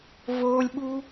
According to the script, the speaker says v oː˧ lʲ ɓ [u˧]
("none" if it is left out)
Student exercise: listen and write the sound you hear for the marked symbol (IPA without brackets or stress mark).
u˧